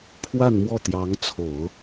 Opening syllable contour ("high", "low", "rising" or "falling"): falling